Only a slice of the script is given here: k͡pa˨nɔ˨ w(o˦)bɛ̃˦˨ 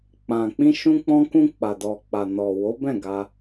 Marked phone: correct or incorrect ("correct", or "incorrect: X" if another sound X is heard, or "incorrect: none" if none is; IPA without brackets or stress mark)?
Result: incorrect: o˨˦